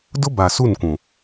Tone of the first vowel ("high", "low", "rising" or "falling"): high